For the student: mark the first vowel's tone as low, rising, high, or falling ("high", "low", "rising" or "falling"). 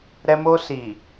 high